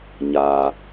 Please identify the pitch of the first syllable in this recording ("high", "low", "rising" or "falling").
high